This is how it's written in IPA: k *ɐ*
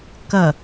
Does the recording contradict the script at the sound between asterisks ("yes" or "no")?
no